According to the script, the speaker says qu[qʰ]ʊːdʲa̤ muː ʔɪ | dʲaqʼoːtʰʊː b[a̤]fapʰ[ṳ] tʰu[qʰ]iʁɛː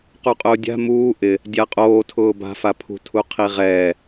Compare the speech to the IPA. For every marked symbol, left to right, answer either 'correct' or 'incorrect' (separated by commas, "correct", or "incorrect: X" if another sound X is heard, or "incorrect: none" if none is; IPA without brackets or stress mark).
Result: incorrect: qʼ, correct, correct, correct